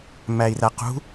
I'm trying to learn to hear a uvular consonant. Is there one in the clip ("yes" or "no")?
yes